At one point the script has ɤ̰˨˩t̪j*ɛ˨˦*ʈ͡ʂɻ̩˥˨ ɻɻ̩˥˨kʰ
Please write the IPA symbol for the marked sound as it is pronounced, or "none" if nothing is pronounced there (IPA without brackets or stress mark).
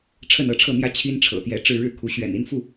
ɛ˨˦